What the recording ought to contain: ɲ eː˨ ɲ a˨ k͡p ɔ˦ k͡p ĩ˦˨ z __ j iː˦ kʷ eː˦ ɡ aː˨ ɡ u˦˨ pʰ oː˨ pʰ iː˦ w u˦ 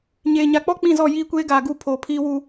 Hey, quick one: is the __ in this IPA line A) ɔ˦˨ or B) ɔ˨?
A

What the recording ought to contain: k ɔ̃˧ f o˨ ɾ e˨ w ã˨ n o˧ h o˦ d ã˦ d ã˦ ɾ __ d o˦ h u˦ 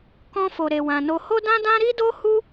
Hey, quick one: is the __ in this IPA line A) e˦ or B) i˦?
B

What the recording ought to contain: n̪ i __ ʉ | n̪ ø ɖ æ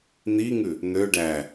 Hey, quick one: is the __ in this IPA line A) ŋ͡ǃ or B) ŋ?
B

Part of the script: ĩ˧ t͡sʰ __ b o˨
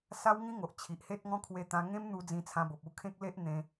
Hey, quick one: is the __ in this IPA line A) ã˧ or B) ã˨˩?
A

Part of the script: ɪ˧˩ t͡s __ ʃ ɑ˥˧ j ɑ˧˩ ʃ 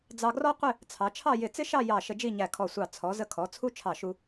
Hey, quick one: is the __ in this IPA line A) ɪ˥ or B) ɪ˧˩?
A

